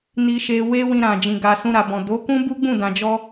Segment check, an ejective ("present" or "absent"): absent